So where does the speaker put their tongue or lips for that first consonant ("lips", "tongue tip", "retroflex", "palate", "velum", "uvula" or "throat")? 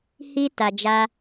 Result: throat